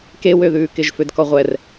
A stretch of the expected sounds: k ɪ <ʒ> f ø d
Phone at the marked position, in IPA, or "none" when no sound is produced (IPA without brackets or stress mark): ʒ